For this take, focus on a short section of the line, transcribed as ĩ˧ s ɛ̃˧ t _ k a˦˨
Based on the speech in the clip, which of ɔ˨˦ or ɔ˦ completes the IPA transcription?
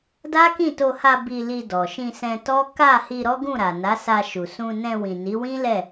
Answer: ɔ˦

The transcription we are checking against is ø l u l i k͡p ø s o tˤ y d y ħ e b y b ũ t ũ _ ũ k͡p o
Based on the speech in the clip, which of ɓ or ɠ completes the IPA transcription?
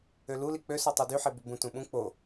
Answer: ɓ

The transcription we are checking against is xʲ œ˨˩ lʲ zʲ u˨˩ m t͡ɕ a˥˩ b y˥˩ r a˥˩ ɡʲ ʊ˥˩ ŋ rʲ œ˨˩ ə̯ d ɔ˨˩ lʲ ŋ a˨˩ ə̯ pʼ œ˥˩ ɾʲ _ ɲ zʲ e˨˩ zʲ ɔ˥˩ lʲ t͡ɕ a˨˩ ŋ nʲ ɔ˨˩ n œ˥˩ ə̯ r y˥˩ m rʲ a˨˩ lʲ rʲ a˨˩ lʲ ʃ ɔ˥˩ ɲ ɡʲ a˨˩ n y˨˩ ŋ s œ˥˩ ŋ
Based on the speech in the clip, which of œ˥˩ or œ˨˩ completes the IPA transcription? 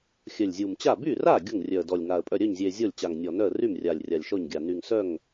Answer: œ˥˩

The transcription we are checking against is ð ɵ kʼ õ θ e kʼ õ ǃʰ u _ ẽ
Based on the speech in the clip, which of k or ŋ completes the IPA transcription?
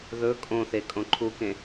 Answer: k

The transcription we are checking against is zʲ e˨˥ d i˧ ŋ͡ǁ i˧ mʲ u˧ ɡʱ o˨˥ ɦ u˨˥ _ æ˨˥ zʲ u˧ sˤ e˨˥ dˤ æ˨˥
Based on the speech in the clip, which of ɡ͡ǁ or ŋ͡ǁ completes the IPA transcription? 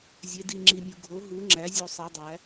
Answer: ŋ͡ǁ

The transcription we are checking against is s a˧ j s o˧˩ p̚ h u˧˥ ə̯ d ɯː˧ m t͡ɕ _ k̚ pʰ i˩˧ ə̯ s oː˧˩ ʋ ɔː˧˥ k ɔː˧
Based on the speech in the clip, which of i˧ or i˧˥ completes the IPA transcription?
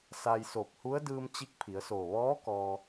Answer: i˧˥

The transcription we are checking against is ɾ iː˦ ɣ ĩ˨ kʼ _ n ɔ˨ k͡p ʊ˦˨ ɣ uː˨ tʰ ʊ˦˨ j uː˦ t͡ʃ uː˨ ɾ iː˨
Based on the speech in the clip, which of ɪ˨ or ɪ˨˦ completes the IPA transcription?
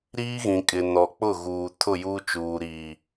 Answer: ɪ˨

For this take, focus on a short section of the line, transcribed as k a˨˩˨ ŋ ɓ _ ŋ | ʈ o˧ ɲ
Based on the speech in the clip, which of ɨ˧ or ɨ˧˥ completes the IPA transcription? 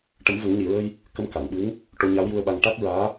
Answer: ɨ˧˥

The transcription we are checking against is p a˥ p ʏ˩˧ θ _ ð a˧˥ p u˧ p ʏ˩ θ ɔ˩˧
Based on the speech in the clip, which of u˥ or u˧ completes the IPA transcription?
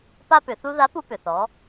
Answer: u˥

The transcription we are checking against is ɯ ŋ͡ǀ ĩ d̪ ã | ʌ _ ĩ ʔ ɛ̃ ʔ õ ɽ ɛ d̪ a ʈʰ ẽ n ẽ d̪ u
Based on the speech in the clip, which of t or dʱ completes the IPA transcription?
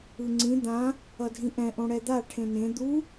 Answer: dʱ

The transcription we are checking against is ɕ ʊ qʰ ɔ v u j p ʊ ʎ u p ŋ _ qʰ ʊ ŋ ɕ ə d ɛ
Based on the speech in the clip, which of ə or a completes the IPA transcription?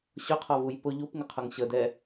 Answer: ə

